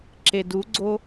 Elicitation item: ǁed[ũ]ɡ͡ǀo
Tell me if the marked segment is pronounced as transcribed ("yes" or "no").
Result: no